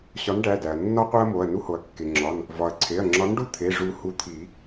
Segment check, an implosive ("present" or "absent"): absent